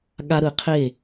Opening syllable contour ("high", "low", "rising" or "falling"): high